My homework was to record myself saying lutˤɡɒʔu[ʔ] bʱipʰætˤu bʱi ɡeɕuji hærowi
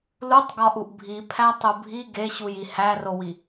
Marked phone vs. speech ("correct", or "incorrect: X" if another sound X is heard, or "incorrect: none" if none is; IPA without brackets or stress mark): correct